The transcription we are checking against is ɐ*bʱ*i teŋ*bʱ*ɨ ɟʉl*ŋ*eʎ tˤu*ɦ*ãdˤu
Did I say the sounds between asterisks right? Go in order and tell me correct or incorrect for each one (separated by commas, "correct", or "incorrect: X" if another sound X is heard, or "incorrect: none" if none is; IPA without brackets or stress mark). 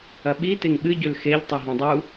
incorrect: ɓ, incorrect: ɓ, incorrect: x, correct